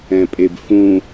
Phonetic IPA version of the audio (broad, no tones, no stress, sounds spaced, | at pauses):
ɛ̃ pʼ e b f ũ